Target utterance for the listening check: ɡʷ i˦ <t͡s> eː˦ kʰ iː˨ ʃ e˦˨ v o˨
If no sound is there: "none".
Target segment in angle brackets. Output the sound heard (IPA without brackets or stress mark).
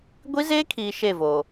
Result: z